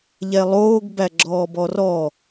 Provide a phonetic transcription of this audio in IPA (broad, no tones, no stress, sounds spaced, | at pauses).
ʎ ɛ lˠ oː ɡ b æ ɡ͡ǁ ɔː b ɔ r ɔ